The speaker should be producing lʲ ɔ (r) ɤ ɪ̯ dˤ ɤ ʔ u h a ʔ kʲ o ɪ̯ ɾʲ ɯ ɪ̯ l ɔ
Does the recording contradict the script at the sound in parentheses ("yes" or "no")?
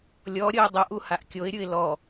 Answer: yes